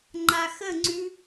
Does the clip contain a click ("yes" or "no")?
yes